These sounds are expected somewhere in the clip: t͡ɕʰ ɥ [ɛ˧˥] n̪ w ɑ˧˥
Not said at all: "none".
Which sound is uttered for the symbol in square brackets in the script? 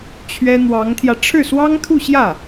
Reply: ɛ˥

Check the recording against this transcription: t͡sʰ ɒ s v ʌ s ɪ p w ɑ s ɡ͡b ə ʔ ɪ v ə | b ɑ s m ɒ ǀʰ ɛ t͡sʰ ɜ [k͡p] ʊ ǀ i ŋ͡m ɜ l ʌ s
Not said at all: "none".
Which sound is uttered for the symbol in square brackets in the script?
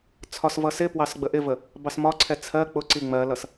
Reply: k͡p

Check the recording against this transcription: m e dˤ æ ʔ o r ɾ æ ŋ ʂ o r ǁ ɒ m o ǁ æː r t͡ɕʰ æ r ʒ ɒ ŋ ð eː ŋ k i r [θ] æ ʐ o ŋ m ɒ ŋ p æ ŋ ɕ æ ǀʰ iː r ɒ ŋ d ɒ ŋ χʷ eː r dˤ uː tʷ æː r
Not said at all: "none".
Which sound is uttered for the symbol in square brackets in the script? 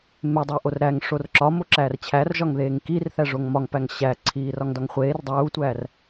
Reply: θ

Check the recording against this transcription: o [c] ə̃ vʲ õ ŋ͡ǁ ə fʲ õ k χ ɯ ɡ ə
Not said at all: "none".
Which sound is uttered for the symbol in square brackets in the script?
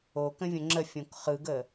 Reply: k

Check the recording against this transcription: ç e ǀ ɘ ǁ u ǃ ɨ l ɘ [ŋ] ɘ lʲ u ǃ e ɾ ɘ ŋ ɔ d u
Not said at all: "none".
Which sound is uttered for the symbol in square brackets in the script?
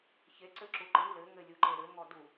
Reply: ŋ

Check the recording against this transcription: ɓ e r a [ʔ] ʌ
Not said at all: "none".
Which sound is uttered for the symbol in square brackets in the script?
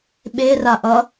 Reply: ʔ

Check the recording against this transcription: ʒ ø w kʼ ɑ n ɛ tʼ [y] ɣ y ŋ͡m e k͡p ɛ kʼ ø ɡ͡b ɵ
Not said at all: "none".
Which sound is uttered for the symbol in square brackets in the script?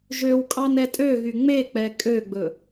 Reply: ø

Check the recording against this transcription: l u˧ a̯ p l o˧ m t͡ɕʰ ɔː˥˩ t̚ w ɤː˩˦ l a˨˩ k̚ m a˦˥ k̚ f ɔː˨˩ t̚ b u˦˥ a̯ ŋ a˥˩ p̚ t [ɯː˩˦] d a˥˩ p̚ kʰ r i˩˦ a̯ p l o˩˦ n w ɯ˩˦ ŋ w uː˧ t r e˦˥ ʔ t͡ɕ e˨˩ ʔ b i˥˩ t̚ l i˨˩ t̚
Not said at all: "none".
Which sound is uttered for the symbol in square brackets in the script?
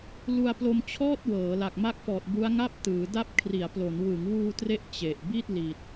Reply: ɯː˩˦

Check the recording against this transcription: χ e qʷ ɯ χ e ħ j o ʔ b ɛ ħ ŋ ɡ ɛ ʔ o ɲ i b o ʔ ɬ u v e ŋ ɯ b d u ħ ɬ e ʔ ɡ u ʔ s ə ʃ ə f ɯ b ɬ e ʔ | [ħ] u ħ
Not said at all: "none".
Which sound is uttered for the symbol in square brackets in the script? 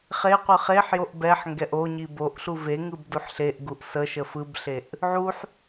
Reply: ʕ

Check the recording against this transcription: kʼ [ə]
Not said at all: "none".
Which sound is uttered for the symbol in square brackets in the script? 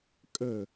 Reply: ə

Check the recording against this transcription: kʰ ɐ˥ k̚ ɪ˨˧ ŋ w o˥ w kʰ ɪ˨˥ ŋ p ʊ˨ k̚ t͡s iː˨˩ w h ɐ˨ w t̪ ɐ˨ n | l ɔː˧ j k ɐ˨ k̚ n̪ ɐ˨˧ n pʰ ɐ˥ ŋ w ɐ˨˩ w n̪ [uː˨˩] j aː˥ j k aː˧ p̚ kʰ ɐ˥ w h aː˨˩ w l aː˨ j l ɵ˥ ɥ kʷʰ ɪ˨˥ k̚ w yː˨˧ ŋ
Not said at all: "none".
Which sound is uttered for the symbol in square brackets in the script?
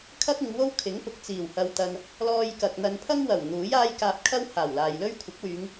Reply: uː˨˥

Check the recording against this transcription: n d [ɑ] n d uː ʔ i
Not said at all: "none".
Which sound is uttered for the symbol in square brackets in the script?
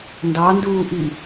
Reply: ɑ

